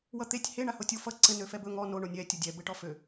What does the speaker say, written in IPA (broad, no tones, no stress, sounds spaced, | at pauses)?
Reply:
w ʌ t̪ e tʲ h e ɳ a h o tʲ o f ʌ ǀ ɘ n ø f ɛ b ɵ ŋ ɔ n o ɳ o nʲ ɛ tʲ o dʲ ɛ b ɘ ʈ ɔ f ø